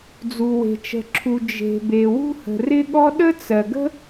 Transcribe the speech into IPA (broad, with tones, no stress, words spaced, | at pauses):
d͡zu˩we̤˩t͡ʃə̤˩ǁʰu˩ d͡ʒe̤˩be˩ wṳ˥hə̤˩rɪ˥ɠɔ˥ ɗə˥t͡sɜ˩ɡə̤˥